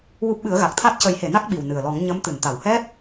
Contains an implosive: yes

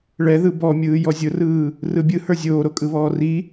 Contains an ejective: yes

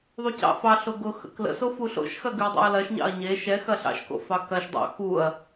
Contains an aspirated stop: no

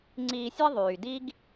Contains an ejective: no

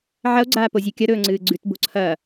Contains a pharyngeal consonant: yes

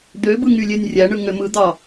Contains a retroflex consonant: yes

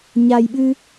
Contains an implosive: yes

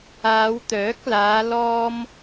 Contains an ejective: no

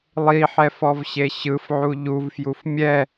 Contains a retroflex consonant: no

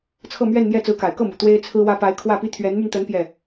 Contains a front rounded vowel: yes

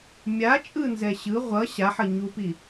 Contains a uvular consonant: yes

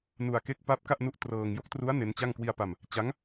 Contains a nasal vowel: no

